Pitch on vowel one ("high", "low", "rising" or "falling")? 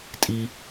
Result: high